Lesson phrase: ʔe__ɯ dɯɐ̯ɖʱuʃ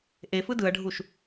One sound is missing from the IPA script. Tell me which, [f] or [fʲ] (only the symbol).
f